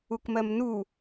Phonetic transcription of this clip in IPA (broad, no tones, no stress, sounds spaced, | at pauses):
u k m ɜ m n u